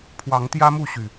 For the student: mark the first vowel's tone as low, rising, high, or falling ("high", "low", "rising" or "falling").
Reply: rising